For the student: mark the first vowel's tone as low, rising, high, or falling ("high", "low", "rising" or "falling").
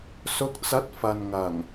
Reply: rising